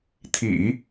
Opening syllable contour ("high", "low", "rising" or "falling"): low